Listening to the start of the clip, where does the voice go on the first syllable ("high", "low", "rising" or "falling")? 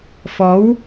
rising